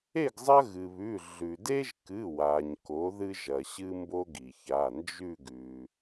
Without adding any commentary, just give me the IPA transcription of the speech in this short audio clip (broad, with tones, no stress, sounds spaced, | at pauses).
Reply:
e˥˨ ɡ zˤ ɐ˦ ɣ ɨ˩ β ʉ˩˧˩ ɮ ʉ˩ d e˦ ʒ k ɨ˩˧˩ w a˩ ɲ k o˩˥ ð ɨ˦ ʒ ɐ˩ ɕ ɨ˦ m b o˦ ɡ i˩ ç a˩˧˩ n d͡ʒ ʉ˥˨ ɡ ʉ˩